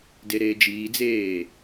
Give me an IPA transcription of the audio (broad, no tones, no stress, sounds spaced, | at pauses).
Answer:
d e ɾ eː d͡ʒ iː d͡z eː